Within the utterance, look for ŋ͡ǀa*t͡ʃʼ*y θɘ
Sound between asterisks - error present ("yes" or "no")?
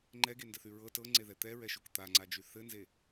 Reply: yes